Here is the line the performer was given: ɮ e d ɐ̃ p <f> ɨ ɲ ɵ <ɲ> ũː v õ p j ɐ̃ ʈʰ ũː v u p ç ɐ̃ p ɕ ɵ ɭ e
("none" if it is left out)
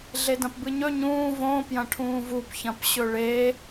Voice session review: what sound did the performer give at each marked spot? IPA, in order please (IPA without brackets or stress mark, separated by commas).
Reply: b, ɲ